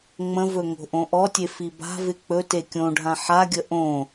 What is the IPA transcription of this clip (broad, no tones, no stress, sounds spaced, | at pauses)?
ŋ͡m ə̃ v ɵ ŋ o̤ ʔ õ ʔ ɔ tʲ e f i b a̤ v ɪ k͡p ɵ t e kʲ õ ɖʱ ã ħ a ɡʲ ə ʔ õ